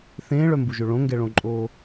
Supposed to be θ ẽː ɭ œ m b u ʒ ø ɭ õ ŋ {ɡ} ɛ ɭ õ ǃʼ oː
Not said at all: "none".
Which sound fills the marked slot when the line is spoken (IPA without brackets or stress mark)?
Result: ɡ